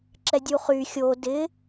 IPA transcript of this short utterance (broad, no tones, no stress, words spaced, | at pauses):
ǁɛdʲuχy xʲo dɪ